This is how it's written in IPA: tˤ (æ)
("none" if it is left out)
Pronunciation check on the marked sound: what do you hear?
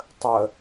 ə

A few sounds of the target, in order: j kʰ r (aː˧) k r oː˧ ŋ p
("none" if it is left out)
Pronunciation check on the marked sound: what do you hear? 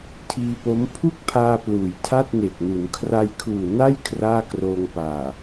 aː˥˩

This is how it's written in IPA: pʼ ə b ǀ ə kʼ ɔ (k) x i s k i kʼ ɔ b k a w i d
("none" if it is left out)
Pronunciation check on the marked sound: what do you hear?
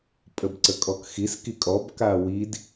k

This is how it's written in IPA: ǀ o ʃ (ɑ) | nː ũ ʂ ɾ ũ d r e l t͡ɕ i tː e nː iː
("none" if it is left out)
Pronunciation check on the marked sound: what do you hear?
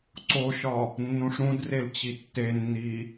ɒ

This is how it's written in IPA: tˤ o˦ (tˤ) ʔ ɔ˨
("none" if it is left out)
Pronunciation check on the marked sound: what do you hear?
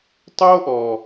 none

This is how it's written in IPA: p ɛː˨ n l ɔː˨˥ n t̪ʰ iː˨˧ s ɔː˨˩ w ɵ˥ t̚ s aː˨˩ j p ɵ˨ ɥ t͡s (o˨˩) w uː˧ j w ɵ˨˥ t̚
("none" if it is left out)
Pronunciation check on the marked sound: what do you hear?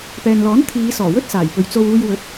o˧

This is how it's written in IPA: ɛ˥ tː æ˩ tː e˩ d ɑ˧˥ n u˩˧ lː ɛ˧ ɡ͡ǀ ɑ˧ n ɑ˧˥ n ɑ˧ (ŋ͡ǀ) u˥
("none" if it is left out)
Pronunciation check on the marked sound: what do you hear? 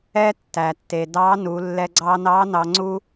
ŋ͡ǀ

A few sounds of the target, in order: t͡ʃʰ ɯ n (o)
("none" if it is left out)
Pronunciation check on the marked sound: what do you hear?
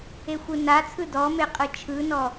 ɔ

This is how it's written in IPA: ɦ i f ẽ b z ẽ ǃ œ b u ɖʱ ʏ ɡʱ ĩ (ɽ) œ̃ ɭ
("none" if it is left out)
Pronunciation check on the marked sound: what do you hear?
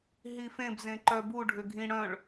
ɽ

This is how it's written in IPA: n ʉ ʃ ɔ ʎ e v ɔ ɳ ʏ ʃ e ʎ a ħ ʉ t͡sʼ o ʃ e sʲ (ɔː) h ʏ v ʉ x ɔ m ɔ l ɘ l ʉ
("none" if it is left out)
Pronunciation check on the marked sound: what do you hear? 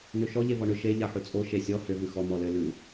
ɔ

